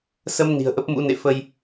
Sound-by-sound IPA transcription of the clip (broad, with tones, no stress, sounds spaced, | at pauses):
s ə˧ m n i̤˨˩ ə̯ ʔ ə˦˥ p̚ m ṵ˧˥ n ḛ˧˨ f ə˧ j